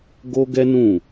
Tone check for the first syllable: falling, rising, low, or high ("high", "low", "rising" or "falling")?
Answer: high